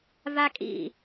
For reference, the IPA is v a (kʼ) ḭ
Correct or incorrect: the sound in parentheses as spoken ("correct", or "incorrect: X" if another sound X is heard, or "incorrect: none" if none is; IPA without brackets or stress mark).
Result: correct